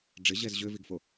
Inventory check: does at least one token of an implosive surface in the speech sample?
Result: no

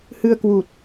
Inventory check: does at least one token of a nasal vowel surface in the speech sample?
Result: no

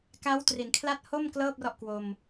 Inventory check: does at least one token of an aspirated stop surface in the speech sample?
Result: yes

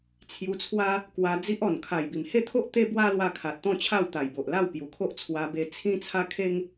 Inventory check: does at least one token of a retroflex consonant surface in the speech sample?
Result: no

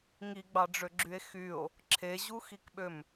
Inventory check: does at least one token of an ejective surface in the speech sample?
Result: no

